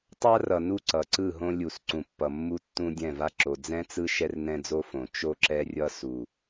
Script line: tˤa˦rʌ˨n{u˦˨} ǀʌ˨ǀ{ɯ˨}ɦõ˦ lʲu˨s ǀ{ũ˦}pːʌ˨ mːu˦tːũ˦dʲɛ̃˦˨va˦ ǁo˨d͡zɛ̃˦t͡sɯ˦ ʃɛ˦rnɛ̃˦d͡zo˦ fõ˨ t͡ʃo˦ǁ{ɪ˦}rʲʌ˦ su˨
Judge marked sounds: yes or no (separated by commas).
yes, no, no, no